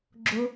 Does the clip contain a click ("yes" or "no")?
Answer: yes